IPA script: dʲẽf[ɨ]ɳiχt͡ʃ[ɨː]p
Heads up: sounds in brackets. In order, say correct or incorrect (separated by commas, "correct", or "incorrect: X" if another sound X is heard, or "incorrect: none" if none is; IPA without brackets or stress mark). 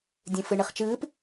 correct, correct